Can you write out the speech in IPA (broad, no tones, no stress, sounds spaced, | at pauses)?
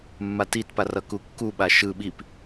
mː a t i t p a r ʌ k u kː u ɓ a ʃ ɯ ɓ i p